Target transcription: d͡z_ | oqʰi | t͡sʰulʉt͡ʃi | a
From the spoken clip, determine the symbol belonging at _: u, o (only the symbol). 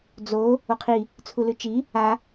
o